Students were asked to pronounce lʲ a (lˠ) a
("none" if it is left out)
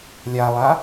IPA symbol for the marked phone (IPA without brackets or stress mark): lˠ